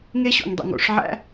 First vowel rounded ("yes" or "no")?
no